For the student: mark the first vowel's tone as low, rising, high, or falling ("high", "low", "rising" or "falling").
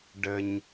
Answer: low